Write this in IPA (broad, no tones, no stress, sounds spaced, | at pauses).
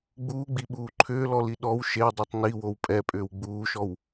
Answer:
ɡ͡b uː ɡ͡b i ɓ uː ǃʰ ʏː l ɔ l i ɗ ɔ w ʃ e dˤ i tˤ n i w o w pʼ ɛ pʼ ʏː w ɡ͡b uː ʃ ɔ w